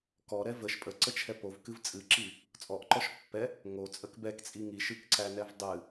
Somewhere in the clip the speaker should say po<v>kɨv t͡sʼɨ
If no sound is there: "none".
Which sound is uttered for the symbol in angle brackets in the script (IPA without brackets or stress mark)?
v